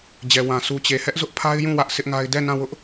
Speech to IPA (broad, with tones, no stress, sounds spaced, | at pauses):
d͡ʑ ɛ˨ w ã˨ s u˨ t͡ɕ e˨ h ɛ˦ ʔ z ʊ˦ ʔ pʰ a˦ ɪ̯ j ũ˦˨ w ä˦ ʔ s ɪ˦ ʔ ŋ a˦ ɪ̯ d ɛ˦˨ n ã˦˨ w ʊ˦ ʔ